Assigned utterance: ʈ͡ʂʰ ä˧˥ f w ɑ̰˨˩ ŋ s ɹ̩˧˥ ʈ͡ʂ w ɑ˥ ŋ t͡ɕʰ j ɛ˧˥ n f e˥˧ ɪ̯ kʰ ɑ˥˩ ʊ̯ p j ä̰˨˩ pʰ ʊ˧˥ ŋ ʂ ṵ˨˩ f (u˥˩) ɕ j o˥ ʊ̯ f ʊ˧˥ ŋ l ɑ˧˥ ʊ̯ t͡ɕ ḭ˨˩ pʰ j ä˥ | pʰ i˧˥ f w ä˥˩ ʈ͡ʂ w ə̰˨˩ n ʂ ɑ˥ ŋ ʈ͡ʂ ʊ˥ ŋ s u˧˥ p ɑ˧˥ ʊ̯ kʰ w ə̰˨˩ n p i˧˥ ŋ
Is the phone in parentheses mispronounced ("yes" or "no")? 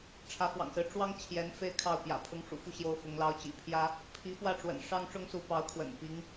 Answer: no